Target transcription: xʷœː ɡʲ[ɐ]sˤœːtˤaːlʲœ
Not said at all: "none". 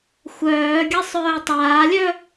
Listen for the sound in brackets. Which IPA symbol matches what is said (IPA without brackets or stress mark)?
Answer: ɐ